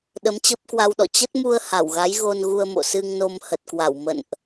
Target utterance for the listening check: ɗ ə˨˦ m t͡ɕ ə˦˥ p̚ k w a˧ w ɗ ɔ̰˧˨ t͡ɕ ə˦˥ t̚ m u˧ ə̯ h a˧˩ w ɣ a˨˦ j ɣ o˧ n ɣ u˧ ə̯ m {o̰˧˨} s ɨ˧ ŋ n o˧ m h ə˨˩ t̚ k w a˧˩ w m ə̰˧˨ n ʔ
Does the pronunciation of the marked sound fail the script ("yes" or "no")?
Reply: no